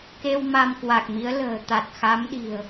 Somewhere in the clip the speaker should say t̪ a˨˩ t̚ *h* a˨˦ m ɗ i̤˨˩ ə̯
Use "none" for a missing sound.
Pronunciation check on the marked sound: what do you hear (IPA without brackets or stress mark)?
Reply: x